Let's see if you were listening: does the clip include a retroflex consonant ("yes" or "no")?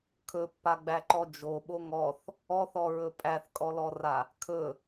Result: no